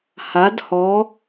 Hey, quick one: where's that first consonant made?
throat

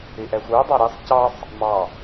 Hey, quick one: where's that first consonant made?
throat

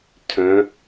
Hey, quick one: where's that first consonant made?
tongue tip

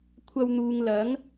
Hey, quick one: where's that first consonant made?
velum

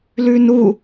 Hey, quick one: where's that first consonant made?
tongue tip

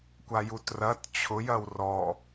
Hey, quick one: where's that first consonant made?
velum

